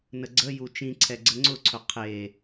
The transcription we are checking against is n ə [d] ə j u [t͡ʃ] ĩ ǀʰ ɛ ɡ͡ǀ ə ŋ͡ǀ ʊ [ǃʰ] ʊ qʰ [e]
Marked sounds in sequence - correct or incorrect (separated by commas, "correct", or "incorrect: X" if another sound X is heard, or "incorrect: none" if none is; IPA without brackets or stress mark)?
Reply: incorrect: ɡ͡ǀ, correct, incorrect: ǀʰ, correct